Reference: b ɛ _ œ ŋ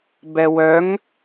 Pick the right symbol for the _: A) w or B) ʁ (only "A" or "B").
A